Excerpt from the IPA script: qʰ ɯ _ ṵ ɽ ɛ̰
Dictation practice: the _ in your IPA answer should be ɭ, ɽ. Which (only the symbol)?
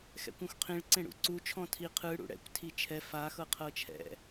ɽ